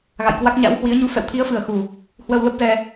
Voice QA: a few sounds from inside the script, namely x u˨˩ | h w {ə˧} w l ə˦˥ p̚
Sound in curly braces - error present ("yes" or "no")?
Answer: no